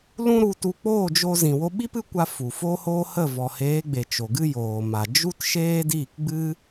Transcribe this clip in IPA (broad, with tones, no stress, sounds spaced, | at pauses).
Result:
l ũ˦ ɾ u˧ t u˧ k͡p oː˦˨ d͡ʒ o˧ z ĩ˨ w o˧ ɓ i˦ p ɨ˦ kʷ a˧ f u˨ f oː˦ h oː˦ h ə˦˨ v ɔ˨ h eː˨˦ ɡ͡b e˨ t͡ʃ o˨ ɡ ɨ˦ j oː˨ m a˨ d͡ʒ u˦ t ʃ eː˦ d iː˦˨ k ɡ͡b ɨ˦